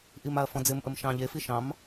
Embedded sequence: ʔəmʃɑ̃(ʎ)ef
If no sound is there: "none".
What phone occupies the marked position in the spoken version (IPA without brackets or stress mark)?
ʎ